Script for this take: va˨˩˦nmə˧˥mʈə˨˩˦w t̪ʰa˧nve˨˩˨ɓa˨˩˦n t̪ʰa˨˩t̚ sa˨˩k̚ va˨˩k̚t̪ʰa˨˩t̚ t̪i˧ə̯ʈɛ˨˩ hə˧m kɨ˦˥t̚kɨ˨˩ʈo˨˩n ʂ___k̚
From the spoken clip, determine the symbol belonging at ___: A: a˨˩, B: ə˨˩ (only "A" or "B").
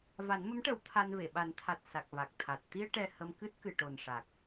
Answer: A